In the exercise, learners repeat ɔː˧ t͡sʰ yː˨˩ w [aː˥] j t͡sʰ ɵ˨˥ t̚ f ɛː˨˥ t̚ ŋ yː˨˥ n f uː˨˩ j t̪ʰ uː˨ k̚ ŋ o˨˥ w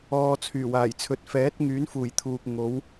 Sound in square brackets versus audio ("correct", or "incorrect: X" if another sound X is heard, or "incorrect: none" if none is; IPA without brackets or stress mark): incorrect: aː˨˩